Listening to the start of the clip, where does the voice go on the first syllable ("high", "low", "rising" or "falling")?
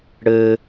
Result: high